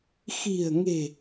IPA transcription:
x i̤˨˩ ə̯ ŋ e̤˨˩

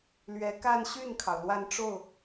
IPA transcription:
l ɥ ɛ˧˥ k a˥˧ n ɕ y˥˩ n kʰ ɑ˩ ʊ̯ l w a˥˧ n ʈ͡ʂ o˥˩ ʊ̯

